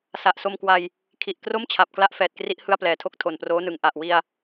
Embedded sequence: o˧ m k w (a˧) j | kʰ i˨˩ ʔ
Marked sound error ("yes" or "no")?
no